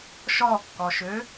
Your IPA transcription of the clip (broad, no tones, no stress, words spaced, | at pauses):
ʃɔkːɔʃø